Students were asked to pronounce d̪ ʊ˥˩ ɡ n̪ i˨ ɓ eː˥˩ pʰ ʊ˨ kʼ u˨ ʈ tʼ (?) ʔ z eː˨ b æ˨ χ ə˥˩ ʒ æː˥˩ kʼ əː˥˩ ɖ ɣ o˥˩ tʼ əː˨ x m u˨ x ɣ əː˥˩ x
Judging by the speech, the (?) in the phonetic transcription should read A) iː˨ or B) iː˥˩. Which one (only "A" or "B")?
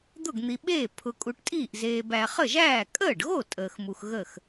B